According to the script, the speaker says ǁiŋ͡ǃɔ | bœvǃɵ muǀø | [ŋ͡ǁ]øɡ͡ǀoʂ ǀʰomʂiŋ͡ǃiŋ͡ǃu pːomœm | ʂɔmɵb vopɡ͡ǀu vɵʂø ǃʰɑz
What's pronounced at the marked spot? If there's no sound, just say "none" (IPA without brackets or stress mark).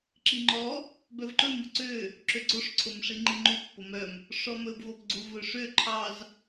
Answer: ǁ